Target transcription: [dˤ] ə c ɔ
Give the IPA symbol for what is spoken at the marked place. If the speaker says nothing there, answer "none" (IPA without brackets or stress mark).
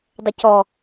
dˤ